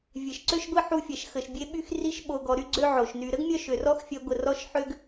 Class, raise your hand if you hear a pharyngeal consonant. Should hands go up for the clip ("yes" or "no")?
yes